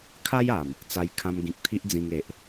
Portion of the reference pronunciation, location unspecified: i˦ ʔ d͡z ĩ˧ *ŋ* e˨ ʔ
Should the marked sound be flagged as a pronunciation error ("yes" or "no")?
no